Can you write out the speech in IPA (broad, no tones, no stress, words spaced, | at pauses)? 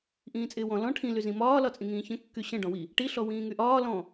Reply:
ʔĩːt͡sʼɪːwɔ̃ lɔ̃ ʈʰĩ lyzĩmɒː lɒt͡sʼĩŋĩːçə̃ kːyɕə̃ ɖɔ̃wi | ʈi ɬɔwĩːŋyʔɒː lɔ̃